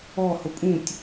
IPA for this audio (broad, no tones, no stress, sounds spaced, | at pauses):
ɔ h ʊ pʼ ũ tʲ